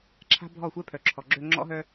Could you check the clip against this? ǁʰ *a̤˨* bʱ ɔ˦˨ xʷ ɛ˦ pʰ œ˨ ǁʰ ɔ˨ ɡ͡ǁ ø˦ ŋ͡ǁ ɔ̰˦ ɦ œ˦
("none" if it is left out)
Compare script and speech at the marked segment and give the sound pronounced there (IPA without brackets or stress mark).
a̤˦